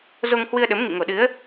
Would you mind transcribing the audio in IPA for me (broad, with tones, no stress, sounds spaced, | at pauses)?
z o˧ ŋ h w ɨ˧ ə̯ ɗ ə˨˦ m ŋ ḭ˧˨ ŋ o˨˩ ɗ ɨ˨˦ ə̯